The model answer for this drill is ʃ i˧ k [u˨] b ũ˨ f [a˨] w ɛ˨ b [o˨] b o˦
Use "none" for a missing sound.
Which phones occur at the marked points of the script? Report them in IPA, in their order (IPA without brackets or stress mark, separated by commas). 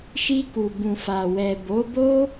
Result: u˨, a˨, o˨˦